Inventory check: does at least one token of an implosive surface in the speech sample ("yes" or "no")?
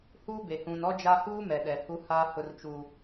yes